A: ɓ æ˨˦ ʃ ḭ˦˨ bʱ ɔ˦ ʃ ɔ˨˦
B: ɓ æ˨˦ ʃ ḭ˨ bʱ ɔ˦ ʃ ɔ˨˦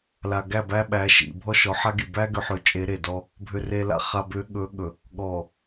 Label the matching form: B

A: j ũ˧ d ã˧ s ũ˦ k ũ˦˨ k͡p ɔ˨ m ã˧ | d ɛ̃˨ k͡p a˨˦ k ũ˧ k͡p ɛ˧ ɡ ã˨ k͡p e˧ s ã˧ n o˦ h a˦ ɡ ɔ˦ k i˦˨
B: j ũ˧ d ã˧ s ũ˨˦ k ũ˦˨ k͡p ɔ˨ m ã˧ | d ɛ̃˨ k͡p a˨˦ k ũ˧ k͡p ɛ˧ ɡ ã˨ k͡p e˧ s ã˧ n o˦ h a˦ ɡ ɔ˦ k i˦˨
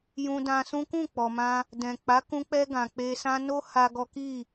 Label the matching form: A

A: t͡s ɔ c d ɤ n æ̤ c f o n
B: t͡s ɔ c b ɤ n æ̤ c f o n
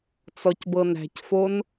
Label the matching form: B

